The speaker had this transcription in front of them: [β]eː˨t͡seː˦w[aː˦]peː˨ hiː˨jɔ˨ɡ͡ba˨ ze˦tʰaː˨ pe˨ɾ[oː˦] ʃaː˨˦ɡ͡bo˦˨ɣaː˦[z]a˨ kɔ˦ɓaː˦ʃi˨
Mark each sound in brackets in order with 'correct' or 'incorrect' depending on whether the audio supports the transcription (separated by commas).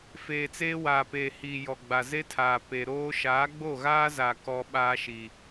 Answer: incorrect, incorrect, correct, correct